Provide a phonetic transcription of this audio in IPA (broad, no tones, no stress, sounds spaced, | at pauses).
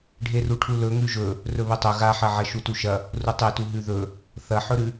ɖʱ e r u ʈʰ u l ɵ ŋ ʉ ʒ ɵ | r ɵ β ɵ tˤ ɵ ɣ a ħ ɐ ʕ ɐ ʃ u t u ʃ ɐ | r u tˤ e t u ɦ ʉ ð ɵ | θ ɐ ħ ɵ ɾ ʉ